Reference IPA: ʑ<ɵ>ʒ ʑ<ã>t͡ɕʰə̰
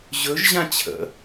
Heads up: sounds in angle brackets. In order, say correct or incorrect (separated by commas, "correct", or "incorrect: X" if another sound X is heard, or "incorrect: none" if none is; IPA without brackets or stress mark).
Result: correct, correct